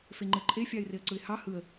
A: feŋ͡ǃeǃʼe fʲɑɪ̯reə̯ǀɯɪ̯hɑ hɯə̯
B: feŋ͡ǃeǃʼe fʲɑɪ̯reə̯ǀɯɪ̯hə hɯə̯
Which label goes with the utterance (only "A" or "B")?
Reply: A